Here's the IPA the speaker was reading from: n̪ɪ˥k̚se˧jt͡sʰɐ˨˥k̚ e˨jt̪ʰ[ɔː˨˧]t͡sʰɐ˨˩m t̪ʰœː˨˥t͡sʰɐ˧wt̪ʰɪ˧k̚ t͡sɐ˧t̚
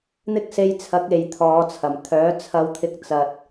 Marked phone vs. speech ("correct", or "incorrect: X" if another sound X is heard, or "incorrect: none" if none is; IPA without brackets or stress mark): correct